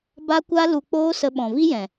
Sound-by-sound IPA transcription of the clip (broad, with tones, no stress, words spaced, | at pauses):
ba˦kʷa˦ lu˧k͡poː˦ sə˧ɓɔ̃˨vi˦jɛ̃˨